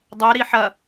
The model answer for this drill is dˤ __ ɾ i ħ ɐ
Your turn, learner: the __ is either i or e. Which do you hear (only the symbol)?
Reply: e